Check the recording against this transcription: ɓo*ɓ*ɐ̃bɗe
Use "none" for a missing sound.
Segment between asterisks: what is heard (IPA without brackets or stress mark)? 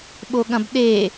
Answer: ɠ